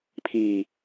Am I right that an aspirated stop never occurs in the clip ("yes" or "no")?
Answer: no